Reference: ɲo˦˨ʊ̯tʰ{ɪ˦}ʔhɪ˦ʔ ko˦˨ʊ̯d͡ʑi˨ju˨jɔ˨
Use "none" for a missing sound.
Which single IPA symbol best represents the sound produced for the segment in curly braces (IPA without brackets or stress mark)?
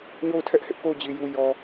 ɛ˦